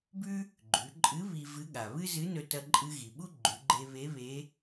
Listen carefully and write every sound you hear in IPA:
b ʉ˥ | ɡ͡ǃ ʉ˩˧ ǃʼ ɨ˧˥ β i˧ v ɨ˧˥ ɠ a˩ β ɨ˥ z ɨ˧˥ n ɵ˧ t ɐ˧ ǃʼ ɨ˧ ɣ i˩ ɓ u˥ ɡ͡ǃ ʉ˩˧ ɡ͡ǃ e˧ β e˧˥ β e˧˥

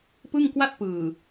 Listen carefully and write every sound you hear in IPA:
p ɯ˥˩ ŋ k w a˥˩ t̚ p ɯː˨˩

